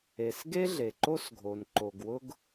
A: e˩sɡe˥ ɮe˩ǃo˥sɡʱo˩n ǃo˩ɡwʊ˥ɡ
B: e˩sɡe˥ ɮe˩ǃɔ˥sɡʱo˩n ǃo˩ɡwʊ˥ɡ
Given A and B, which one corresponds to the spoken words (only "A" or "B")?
A